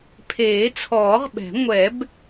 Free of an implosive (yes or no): no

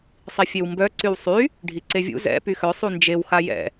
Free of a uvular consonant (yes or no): yes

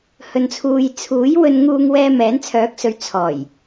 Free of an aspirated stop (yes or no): no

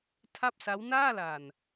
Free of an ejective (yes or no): yes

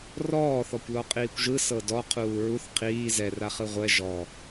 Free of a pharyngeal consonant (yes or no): yes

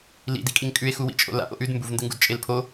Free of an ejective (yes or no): no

